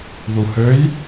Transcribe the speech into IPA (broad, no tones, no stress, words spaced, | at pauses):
ðuhøj